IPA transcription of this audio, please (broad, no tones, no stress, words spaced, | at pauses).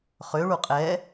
χøɭu qʼɛ